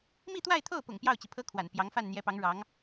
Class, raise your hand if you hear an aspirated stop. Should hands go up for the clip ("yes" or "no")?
yes